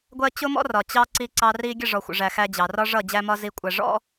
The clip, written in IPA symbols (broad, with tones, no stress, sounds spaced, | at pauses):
ɡʷ ɜ˦ t͡ɕ ʊ˦ m ɔ̰˦ r ɒ˨ t͡ɕ ɑ˧ ǀ i˧ ǀ ɑ˧ r i˧ ɡʲ ə˦˨ ʐ ɔ˨ xʷ ə̰˨ ʐ æ˨ x æ˧ d͡ʑ ɑ˨ r ɒ˦ ʐ ʌ˦˨ d͡ʑ æ˧ m ɒ˧ z i˧ kʷʼ æ˧ ʐ ɔ̰˦